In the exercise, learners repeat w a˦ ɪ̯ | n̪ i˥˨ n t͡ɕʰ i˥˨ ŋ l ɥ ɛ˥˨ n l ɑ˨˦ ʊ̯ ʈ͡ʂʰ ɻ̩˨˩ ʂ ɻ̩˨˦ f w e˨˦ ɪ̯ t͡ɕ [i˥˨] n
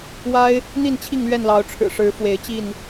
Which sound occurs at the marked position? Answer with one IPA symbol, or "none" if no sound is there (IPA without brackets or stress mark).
i˥˨